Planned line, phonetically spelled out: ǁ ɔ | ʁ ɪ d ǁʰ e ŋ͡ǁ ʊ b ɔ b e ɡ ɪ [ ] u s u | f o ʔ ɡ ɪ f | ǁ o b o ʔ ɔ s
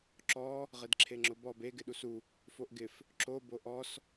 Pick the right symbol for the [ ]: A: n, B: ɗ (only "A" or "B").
B